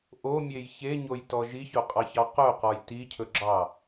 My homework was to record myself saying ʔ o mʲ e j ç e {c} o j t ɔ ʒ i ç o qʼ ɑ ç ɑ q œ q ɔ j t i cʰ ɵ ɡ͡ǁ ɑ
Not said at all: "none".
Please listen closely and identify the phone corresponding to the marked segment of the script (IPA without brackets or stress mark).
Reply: ɲ